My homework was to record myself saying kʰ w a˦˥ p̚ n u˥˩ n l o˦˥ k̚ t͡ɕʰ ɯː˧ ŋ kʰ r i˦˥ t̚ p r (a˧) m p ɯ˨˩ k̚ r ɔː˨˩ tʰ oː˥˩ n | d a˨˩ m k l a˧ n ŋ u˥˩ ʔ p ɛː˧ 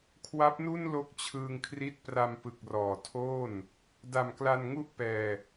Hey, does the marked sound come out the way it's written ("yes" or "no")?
yes